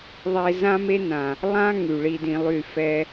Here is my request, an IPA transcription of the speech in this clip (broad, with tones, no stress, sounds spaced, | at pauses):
ðˤ e˦ z ã˦ m e˦ n ã˨ | lˠ ã˦ ŋ y˨ ɭ i˧ d ĩ˧ lˠ y˦˨ f ɛ˧